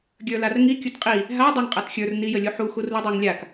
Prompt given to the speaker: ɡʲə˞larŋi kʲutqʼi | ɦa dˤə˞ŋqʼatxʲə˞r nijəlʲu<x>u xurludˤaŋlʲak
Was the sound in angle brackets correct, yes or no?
no